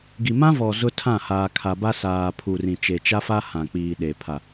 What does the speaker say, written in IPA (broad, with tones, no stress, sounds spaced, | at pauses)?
ɡ i˨ m ã˦ v ɔ˨ z ʊ˦ tʰ ã˦˨ h aː˨ kʰ a˨ b a˦ s aː˨ pʰ u˨ r ĩ˨ t͡ʃ e˨ t͡ʃ a˦ f a˦ h ã˨ k͡p iː˨ ɗ e˨ pʰ a˨